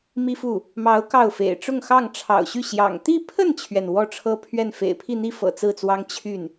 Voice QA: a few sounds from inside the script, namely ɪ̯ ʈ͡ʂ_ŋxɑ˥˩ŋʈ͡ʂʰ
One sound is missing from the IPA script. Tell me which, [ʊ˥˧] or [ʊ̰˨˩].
ʊ˥˧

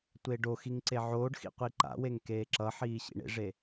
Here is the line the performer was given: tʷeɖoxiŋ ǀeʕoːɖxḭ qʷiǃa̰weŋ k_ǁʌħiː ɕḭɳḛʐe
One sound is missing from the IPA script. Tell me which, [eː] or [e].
eː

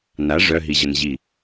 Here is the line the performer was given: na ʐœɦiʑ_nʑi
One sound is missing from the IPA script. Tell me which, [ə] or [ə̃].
ə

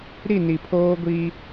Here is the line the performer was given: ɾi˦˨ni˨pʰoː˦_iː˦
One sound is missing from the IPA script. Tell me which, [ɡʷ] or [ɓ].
ɡʷ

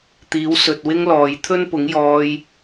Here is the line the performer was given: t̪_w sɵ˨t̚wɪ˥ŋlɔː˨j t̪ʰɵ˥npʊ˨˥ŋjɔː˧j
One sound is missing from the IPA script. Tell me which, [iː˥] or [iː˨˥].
iː˨˥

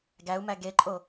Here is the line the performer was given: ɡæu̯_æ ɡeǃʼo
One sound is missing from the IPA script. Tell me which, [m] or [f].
m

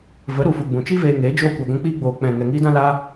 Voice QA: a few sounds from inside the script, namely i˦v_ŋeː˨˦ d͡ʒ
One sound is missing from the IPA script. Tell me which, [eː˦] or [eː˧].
eː˧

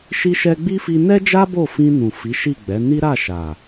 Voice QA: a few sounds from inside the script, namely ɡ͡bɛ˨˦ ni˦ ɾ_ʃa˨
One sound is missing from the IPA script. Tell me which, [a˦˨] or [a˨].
a˦˨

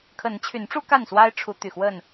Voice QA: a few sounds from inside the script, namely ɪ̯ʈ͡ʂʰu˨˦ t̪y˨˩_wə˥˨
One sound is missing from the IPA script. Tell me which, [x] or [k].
x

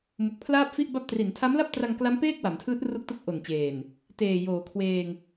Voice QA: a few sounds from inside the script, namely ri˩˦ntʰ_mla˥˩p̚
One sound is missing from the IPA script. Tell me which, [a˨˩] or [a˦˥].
a˦˥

